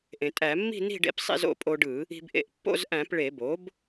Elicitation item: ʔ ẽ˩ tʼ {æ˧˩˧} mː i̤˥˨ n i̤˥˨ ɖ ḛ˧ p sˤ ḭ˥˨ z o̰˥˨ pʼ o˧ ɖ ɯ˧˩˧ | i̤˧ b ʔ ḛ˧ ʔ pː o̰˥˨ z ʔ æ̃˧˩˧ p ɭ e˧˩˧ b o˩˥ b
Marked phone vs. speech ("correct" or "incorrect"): correct